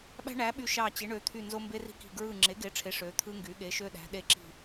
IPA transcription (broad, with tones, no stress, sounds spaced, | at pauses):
ɓ æ̤˥ ɳ æ˨˥ ɓ y˦˨ ʃ ɑ˦˨ t͡ɕ e˨˥ ɳ ø˨˥ t̪ʰ y˦˨ n z o˥ m b e˥ r i̤˥ k i̤˦˨ ɡ ɹ ɯ˦˨ ŋ͡ǁ e˨˥ ɡ e˨˥ ʈ͡ʂʰ e˨˥ ʂ ø˨˥ t̪ʰ ɯ˥ ŋ ɡ y˨˥ ɠ e˨˥ ʃ ø˥ ɗ æ̤˨˥ ɗ e˦˨ ǁ i̤˦˨